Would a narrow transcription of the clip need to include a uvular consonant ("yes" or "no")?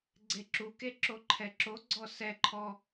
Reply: no